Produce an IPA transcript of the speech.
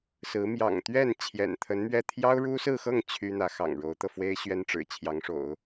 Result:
sɹ̩˧˥ mjɑ̰˨˩ŋt̪ɥɛ˥˩n t͡ɕʰjɛ̰˨˩nt̪ʰə˧˥nmɥɛ˥˩ t̪ʰjɑ˥ʊ̯ɻu˥sɹ̩˥˧xɤ˥˩ŋ t͡ɕʰy˥n̪ä˧˥xɑ̰˨˩ŋ ɻo˧˥ʊ̯t̪ɤ˧fwe˥ɪ̯ ɕɥɛ˥nʈ͡ʂɻ̩˨˩t͡ɕʰjɑ˧˥ŋʂo̰˨˩˦ʊ̯

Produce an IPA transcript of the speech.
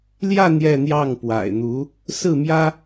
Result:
ljä˥˧ n̪jɛ˥˧n̪jɑ˥˩ŋpwa̰˨˩ɪ̯n̪u˧˥ | sɹ̩˥˩mjä˥

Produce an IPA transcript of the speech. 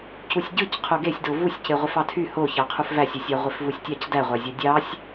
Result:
cusʲɟɯc qʰoɡesʲdo vusʲce ʁʷefɑtʰy hoçɑqʰuf væsʲusʲɑ ʁʷefvusʲtʲɑc dæʁʷæzʲo dʲɑsʲ

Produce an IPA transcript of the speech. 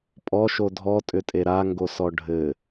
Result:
pʼɔʃo dʱɔtʼʏtʼe ɾaŋɡosɔ ɖʱɘ

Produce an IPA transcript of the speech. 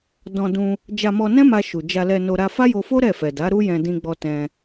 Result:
dɔ̃˧dũ˧ | d͡ʒa˧mɔ˧nɛ̃˦ma˧ ʃu˨d͡ʒa˧lɛ˧no˧ ɾa˧fa˦jo˧fo˦ ɾɛ˦˨fɛ˨da˨˦ ɾu˦jɛ̃˧ dĩ˧ɡ͡bɔ˧ tɛ̃˧

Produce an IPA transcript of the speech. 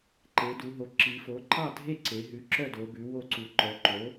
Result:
ǃe˩˧ du˩˧ɦo˩˥ǁi˩˧fo˩˥ ǃɑ˥˨dʱe˥˨ǀe˩˧ ɦʉ˩˥ǁœ˥˨do˩˧ bʉ˩˥wo˥˨ ǀu˩˧ǃœ˩˧ǃo˩˥

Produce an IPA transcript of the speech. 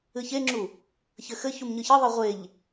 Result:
ɨçeŋ͡ǁu | çɘxɘ çumɲɨçɨðˤɨ ʁʷeʎ

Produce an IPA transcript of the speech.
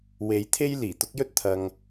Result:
we˨˥jt̪ʰe˥j liː˨˩t̪ʊ˥k̚jɵ˥t̚ t̪ʰɐ˧ŋ

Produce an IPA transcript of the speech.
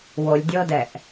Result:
wolʲdʲɤdɛʔ

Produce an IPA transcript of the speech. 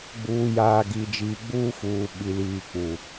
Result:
ɡ͡buː˨jaː˨ ɡi˨d͡ʒiː˨ɡ͡buː˦fuː˨ ɓi˨liː˨k͡pu˨

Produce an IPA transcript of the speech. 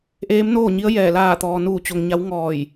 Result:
ʔeː˧˥mnoː˥˨ɲi˧˥ə̯jɛː˧˩ laː˧˩t̪ɔː˩ nuː˧˩t͡ɕo˩ŋ ɲa˧˥w ŋɔː˧˩j

